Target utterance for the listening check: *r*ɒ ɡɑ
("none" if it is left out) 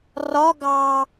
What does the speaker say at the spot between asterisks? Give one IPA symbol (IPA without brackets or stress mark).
r